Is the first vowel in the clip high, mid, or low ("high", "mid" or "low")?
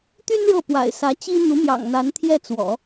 high